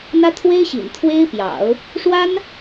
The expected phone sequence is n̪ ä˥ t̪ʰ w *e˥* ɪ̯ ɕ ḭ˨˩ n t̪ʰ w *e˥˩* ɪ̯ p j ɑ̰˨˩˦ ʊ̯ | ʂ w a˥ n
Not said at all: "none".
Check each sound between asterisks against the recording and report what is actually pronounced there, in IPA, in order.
e˥, e˥

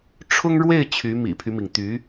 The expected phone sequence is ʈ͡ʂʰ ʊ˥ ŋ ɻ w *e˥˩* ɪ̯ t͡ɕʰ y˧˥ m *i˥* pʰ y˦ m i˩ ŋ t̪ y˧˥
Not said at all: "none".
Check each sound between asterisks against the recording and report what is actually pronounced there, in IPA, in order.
e˥˩, ḭ˨˩

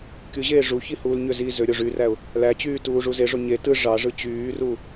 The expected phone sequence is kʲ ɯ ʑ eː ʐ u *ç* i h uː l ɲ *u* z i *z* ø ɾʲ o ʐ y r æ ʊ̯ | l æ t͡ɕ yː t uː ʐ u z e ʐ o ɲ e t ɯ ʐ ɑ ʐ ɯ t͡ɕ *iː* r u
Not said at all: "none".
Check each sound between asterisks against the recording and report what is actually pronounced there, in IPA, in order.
ç, ø, z, yː

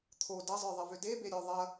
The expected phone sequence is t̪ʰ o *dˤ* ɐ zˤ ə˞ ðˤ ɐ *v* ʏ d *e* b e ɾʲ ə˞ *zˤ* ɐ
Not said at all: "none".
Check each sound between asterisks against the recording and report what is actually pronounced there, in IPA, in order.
d, v, e, ðˤ

